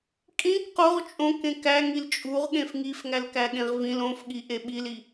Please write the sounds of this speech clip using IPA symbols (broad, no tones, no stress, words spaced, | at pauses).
kʼĩk qoʁ t͡ʃʼõk ẽkæŋil t͡ʃʼuʁ ɠẽfŋif ŋælkæɠẽʁvĩl õfɠi ʔeɓili